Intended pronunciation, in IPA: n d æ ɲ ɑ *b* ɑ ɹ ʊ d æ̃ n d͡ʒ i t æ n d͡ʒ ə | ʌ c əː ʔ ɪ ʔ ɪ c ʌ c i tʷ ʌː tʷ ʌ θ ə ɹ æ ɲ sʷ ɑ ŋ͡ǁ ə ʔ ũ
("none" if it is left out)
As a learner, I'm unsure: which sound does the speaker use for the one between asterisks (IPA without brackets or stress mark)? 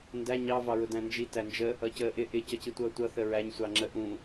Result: v